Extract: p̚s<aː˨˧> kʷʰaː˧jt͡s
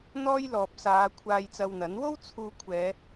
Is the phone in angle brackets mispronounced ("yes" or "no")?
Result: no